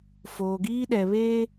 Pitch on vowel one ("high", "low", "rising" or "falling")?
low